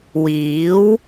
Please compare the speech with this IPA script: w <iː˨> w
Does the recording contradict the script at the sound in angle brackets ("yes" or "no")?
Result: yes